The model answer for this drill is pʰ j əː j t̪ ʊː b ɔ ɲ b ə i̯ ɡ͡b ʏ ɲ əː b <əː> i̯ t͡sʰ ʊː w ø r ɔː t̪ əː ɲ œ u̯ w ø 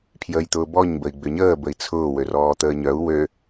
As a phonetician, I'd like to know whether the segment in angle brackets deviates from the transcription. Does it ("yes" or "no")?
yes